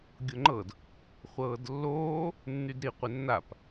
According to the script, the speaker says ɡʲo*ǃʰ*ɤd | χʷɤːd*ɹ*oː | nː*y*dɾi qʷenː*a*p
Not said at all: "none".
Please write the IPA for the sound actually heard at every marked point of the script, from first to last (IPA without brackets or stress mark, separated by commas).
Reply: ŋ͡ǃ, lː, y, a